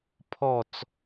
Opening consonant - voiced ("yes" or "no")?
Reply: no